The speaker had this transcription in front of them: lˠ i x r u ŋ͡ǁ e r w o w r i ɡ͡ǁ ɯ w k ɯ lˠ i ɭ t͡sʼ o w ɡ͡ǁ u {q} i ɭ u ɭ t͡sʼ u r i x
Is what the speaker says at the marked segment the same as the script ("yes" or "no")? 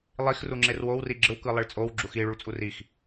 no